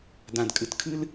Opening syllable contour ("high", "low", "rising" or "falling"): low